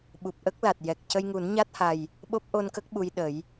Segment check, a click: absent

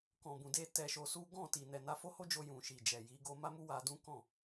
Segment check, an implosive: absent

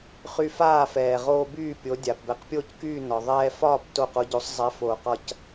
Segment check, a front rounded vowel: present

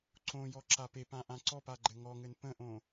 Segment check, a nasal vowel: present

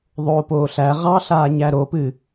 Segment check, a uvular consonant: present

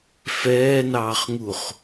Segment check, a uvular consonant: present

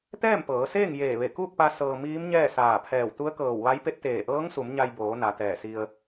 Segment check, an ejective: absent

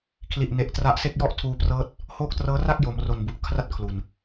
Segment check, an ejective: absent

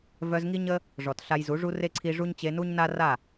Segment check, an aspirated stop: present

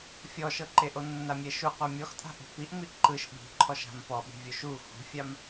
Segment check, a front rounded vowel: absent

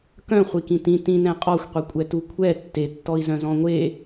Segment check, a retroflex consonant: absent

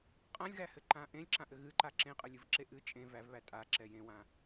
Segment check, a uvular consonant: present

